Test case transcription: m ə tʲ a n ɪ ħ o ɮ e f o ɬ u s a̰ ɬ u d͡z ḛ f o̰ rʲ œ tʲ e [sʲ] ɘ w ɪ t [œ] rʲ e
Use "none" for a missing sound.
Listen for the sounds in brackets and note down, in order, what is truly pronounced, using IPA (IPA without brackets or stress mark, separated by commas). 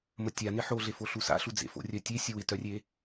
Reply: sʲ, œ